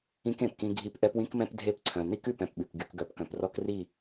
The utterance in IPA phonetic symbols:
ĩ˦kẽ˨pkĩ˦ ɡʱi˦p ʔɛ˦pwĩ˦kmɛ̃˦p dʱe˦pǀʰœ̃˨ ni˦kʉ˨p ɛ̃˨pɓʉ˨k ɡy˨kɡœ˨pkœ̃˨prɔ˦k ri˦˨

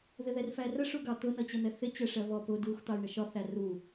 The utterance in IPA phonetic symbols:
ðɪðɛrfærə ʂuɡɑt̪ʊ nʌt͡ɕən̪ɛθɪ t͡ɕɛʂɜβɔ pʊ dux t̪ɑu̯ɳəʃɒ θæru

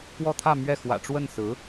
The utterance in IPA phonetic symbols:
kwɔ˥˧t̪ʰä˥˧ mɥɛ˥˩ xwä̰˨˩ʈ͡ʂwə˥˩n sɹ̩˧˥

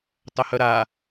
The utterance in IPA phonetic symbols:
tˤœhœɾa

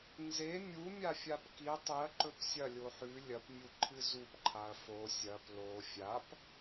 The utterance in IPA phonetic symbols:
nze mʲumʲafʲap ki tˤiɐ̯ǃɵp sʲɐlʲo ħʉ lʲɐpmʲuǃʰɨ zupǃʰaɐ̯ fo sʲɐp lo fʲap

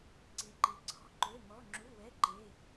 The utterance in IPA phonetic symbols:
ǀi˨˥ǃi˨˥ǀʰɔ̤˧˥˧ ǃø˧˥˧mɔ˧˥˧ ŋ͡ǁu˧˥˧wɛ˧˥˧ ǃe˧˥˧

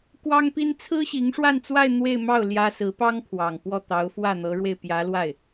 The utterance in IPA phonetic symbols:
kwɑ˥ŋpi˥n t͡sʰɹ̩˥ɕi˧˥ŋʂwa˥˧nt͡swa˥˧ɪ̯ n̪we˥˧ɪ̯mɑ˥˩ʊ̯ ljä˥ sɹ̩˧˥pɑ˥ŋpʰwɑ˨˩ŋ pwɔ˥˩t̪ɑ˧˥ʊ̯fwä˥˩ n̪ɤ˧˥ɻwe˧ɪ̯pjä˧˥lwa˥˩ɪ̯

